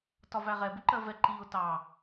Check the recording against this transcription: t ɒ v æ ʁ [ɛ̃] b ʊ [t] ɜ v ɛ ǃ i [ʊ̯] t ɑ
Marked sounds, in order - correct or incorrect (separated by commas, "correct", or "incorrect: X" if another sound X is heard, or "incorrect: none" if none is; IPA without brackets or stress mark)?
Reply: incorrect: ɛ, incorrect: ǃ, correct